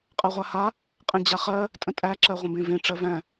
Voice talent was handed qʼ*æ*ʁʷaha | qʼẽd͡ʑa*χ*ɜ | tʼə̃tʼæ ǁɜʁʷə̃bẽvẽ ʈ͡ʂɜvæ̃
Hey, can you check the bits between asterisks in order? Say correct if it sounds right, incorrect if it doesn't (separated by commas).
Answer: incorrect, correct